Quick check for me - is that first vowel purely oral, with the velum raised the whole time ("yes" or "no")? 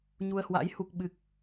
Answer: yes